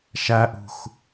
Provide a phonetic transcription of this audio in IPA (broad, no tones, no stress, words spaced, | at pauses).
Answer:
ʃæʔṳx